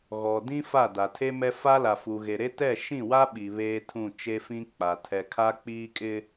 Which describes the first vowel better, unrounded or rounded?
rounded